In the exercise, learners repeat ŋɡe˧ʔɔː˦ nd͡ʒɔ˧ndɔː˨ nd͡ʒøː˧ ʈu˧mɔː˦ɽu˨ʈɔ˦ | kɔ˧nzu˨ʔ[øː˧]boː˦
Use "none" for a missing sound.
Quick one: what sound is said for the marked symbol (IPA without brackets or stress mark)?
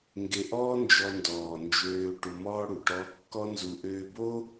øː˧